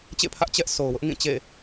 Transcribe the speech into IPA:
t͡ɕḛ˦˨pʰä˦ʔ t͡ɕɛ˦ʔso˨ʊ̯wʊ˦ʔ ŋĩ˦˨t͡ɕḛ˦˨

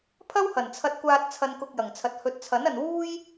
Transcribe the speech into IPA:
pʰɐ˥whɐ˨˩nt͡sʰɐ˧t̚kʷaː˧t̚ t͡sʰɐ˧nkʊ˧k̚jɐ˨˩ŋt͡sʰɐ˨t̚ hɵ˨˥t̚t͡sʰɐ˨˥nɐ˨n wuː˥j

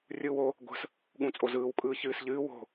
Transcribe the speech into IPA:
rʲɯːwo | ɡʷə̤s | ɠũt͡sʼozɯːw kʼɯːçɨːsʎɨː wo̤

